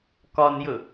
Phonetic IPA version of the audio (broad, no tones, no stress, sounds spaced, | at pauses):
k ɒ n j ɵ